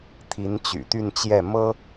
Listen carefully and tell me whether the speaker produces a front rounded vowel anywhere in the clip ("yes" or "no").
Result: yes